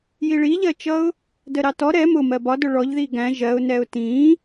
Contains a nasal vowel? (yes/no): yes